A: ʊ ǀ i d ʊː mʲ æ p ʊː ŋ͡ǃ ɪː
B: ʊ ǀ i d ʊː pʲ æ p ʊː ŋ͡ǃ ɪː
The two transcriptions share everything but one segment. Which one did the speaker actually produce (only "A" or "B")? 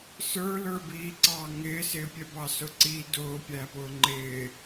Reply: B